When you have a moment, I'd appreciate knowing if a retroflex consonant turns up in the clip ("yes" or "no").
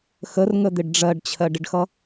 yes